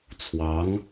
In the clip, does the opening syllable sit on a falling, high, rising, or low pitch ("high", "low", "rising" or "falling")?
rising